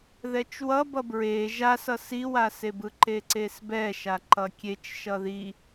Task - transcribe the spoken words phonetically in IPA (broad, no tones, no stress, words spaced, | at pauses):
ðɛt͡ʃwʌ bʌbɹe ʒasʌ siwasebɯ ǃeǀesbɛʃa ǃʌkʲet͡ʃ ʃʌði